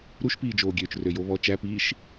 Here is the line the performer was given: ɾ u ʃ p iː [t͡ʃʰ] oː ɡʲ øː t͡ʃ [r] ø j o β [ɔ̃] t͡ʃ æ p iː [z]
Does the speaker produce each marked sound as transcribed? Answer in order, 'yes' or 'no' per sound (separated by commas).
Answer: no, yes, no, no